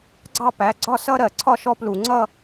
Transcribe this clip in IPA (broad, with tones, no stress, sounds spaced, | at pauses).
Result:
ɡ͡ǀ ɑ˥˩ p æ˩˧˩ ɡ͡ǀ ɒ˥˩ s ʌ˥˧ ɾ ɜ˧˩˧ ǀʰ ɒ˥˧ ʃ ɔ˦˥ p l u˧˩˧ ŋ͡ǀ ʌ˥˧